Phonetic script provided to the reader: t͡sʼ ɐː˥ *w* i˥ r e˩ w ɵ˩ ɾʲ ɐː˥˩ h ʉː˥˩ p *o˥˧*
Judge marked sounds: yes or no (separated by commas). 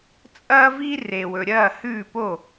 no, no